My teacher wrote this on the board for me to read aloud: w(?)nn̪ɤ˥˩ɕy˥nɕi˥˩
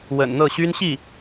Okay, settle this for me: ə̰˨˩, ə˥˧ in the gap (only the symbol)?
ə̰˨˩